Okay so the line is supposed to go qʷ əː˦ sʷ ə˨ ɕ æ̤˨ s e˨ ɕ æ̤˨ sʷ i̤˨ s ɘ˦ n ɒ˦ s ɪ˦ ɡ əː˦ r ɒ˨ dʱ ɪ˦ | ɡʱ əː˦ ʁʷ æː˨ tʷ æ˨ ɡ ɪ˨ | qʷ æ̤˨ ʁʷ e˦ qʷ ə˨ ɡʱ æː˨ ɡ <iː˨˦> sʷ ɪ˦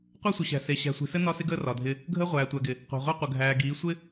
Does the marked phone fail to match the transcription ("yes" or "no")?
no